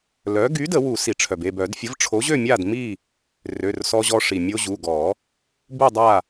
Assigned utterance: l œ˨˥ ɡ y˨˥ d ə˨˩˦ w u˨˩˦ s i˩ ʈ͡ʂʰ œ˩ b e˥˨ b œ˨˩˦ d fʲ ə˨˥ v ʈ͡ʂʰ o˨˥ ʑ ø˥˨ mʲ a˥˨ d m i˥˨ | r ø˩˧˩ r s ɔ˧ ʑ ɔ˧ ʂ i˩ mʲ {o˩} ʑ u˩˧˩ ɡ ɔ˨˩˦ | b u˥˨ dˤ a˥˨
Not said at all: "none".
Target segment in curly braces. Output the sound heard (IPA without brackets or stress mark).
o˧